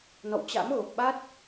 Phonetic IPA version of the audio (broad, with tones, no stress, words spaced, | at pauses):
nɔ̰˧˨wt͡ɕa̰˧˥mɣo˨˩k̚ɓa˦˥t̚